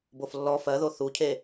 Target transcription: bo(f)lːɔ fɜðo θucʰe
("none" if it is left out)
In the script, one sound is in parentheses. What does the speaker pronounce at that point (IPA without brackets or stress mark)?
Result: f